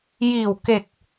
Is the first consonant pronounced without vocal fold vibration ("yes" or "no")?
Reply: no